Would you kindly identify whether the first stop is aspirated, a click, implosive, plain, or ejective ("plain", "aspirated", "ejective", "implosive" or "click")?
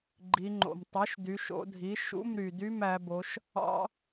click